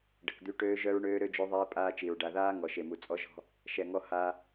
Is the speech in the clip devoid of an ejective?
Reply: no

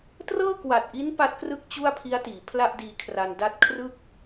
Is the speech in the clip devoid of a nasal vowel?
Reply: yes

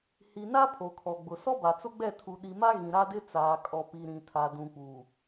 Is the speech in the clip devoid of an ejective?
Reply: no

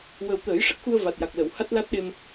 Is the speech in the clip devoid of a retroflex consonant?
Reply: no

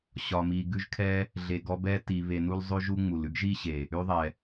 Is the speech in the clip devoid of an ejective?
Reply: yes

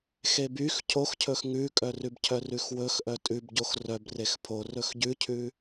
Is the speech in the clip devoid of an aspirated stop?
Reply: no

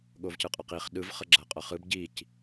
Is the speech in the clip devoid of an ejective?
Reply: no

